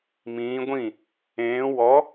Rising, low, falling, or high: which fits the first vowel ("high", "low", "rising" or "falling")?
rising